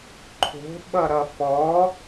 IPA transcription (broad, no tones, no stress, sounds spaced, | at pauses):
ǃʰ o̤ ɓ ʌ ɾ ʌ f ɔ